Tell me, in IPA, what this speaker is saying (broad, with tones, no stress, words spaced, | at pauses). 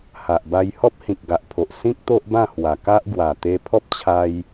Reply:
ha˨ʔba˧jhɔ˦p̚ hĩ˨k̚ɡa˨ʔpʰo˨ʔ sĩ˦k̚ t̪o˦ʔbã˥˧hwa˨˩ka˦ʔ ɡwa˨˩t̪e˧pʰɔ˦p̚t͡ɕʰa˧j